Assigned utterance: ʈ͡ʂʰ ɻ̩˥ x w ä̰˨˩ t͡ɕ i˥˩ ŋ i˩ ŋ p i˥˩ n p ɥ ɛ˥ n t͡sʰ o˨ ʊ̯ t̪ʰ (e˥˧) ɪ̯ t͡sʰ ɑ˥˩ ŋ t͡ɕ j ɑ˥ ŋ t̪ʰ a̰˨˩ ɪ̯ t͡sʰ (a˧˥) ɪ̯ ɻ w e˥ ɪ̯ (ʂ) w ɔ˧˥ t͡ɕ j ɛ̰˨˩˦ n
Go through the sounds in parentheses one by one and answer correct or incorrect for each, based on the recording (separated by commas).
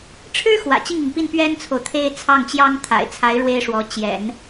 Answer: correct, correct, correct